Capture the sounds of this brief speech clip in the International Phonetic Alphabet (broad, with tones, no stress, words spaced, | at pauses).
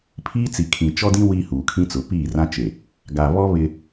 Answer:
pʰiː˦t͡si˨kʰĩ˨ t͡ʃɔ˦dĩ˦ wiː˦huː˨kʰĩ˦t͡sʊ˨˦ piː˦˨rã˦t͡ʃe˨ | ɡa˨βɔ˦ βɪ˦